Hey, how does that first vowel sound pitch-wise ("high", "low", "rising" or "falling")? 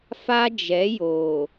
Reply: high